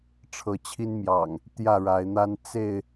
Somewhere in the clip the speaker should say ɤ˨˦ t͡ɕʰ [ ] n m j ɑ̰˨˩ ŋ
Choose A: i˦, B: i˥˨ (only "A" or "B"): A